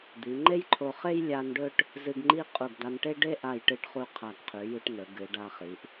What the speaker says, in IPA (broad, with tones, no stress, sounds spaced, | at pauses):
d̪ i˩˧ ŋ͡ǃ e˥ j ǃʰ o˧ χ e˥ j lʲ a˧ n ɖ ɵ˥˧ ʈ | z ɨ˧ ɡ ŋ͡ǃ i˥˧ qʼ u˧˩ ɡ d̪ a˧ n ʈ e˥ ɖ e˥ ʔ a˧˩ j ʈ ɨ˧˩ ʈ χ u˧˩ qʰ a˧˩ ɡ qʰ ʉ˩˧ j ʉ˧ ʈ n ɵ˩˧ ɡ ɨ˩˧ ɖ a˧ χ i˩˧ ʔ